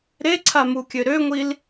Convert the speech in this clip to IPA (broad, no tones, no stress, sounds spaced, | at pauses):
ɾ e ǀʰ a m u kʲ ø ɾ ø ŋʷ i l